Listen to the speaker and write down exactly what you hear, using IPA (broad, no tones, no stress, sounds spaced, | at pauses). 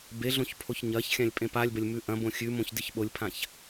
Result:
b e ɮ õ ç pʰ o ç ɲ ɐ ç xʲ ã lʲ pʼ ẽ p a lʲ b ɐ lʲ m ʉ ʔ ɐ̃ b õ xʲ ʉ m õ ç d ɨ ç ɓ o lʲ pʰ ã ç